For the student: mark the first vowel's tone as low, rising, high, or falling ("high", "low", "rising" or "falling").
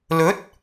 rising